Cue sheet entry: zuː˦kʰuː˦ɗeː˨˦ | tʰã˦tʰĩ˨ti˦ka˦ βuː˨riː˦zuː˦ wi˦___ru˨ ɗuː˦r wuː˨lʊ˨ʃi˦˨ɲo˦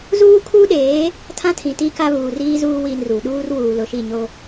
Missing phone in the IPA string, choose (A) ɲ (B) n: B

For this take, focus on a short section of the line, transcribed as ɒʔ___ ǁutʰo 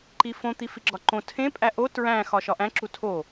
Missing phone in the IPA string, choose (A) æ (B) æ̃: B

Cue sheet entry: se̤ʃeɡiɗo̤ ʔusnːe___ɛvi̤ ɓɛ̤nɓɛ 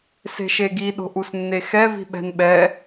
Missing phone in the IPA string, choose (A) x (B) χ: A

